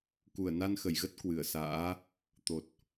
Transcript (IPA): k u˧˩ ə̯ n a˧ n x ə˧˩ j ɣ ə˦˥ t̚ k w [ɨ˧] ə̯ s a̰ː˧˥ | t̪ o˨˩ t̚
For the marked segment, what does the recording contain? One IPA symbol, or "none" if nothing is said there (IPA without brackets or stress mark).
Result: ɨ˧˩